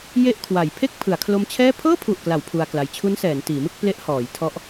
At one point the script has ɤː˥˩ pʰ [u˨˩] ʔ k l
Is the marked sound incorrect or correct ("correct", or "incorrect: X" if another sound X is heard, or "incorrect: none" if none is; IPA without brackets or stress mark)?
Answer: correct